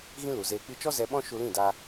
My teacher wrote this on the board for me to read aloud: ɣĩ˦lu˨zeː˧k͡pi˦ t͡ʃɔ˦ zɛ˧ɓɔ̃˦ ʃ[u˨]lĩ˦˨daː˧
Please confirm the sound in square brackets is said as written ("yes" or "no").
no